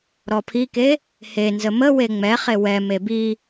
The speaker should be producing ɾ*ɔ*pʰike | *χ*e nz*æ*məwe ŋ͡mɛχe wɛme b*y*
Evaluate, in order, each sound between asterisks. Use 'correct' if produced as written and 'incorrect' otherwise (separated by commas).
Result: correct, incorrect, incorrect, incorrect